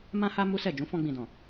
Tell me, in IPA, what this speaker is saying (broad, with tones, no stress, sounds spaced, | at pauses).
m ã˦ h a˦ m u˦ s ɛ˦˨ d͡ʒ ũ˨˦ f ɔ̃˧ ɡ͡b ĩ˨ d ɔ̃˨